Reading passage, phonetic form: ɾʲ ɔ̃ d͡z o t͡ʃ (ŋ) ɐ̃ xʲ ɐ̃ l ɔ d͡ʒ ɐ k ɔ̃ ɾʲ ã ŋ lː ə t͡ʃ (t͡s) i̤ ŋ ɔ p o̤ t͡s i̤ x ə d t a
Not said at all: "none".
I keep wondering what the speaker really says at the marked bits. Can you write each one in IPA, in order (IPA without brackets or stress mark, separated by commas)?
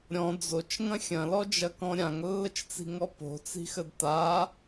ŋ, t͡s